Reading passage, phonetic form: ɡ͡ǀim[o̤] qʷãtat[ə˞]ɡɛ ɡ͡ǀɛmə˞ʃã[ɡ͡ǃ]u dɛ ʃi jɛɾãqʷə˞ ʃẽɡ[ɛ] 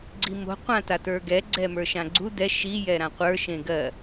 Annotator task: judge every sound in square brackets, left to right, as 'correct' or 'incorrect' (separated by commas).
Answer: correct, correct, incorrect, incorrect